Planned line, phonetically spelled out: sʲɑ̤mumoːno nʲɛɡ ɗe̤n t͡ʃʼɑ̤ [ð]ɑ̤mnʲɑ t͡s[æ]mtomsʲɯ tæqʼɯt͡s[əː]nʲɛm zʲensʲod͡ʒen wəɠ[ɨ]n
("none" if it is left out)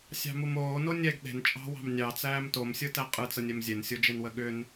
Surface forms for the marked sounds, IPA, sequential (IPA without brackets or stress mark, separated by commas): w, æː, ə, ʏ